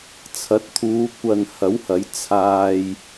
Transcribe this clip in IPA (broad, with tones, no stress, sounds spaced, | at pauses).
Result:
t͡sʰ ɐ˨˥ t̚ t̪ʰ uː˨˧ kʷ ɐ˨ n h ɐ˨˥ w h ɐ˨˥ j t͡sʰ aː˧ j